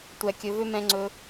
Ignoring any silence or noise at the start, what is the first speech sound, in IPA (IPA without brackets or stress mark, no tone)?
tʷ